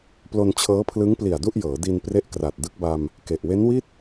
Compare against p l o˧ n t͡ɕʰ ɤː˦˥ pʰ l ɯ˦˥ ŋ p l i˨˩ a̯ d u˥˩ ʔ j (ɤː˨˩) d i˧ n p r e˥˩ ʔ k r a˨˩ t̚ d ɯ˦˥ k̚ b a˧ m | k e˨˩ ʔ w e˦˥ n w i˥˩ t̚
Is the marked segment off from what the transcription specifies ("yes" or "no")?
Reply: yes